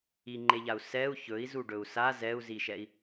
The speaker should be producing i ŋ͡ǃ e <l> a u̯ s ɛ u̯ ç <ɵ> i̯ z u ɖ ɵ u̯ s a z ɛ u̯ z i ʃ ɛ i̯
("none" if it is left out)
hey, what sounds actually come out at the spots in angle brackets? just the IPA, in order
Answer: ʎ, ɵ

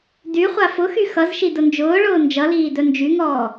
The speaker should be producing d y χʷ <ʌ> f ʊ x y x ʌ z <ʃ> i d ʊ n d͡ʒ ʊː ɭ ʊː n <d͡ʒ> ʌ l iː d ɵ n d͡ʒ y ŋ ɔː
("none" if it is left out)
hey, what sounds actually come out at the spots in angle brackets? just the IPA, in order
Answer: a, ʃ, d͡ʒ

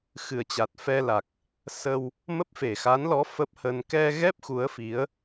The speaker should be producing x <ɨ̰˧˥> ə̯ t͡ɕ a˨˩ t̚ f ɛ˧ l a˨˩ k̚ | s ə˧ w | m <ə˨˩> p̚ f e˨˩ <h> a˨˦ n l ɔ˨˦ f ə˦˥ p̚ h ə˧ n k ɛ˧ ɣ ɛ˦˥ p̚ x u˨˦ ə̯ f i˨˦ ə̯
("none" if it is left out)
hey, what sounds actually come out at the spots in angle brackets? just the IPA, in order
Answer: ɨ˨˩, ə˦˥, x

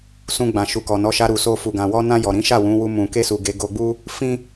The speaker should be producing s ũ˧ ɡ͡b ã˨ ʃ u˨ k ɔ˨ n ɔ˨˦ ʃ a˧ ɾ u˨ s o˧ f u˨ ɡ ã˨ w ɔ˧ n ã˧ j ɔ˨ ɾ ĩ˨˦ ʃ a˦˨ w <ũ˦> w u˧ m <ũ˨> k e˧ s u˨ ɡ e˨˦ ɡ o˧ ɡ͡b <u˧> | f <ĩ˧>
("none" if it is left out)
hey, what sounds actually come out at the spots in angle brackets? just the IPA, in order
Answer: ũ˨˦, ũ˨, u˦, ĩ˦

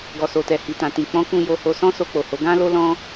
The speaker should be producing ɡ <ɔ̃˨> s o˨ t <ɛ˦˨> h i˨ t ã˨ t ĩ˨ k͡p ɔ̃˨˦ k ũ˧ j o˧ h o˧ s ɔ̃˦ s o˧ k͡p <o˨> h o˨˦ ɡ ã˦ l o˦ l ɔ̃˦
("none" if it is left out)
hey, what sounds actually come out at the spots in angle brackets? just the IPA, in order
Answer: ɔ˨, ɛ˨, o˨

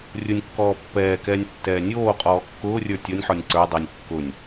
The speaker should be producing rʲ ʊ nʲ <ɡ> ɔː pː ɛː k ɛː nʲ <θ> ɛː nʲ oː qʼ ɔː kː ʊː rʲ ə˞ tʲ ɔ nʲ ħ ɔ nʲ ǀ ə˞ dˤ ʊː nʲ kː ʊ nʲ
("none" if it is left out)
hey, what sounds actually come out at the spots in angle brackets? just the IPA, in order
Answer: kː, tː

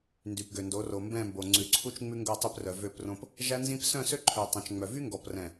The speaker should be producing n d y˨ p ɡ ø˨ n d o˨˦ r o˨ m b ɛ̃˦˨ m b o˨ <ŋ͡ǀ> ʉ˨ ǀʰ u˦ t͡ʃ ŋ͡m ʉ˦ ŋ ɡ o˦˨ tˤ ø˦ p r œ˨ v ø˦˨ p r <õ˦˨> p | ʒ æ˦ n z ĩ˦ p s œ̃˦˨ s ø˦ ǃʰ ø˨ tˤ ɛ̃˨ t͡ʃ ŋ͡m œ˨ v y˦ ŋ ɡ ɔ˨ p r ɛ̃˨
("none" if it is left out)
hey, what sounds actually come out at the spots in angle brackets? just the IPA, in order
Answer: ŋ͡ǀ, õ˦

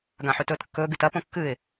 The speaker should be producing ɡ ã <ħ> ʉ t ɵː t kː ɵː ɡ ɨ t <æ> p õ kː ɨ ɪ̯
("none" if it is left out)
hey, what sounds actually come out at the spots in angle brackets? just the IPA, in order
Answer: ħ, ɐ

